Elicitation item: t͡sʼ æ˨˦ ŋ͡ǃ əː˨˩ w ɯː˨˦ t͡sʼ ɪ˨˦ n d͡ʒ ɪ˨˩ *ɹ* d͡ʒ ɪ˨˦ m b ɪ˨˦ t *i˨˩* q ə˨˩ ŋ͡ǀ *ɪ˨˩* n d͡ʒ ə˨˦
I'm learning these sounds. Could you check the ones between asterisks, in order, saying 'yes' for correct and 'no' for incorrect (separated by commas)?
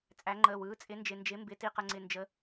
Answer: no, yes, yes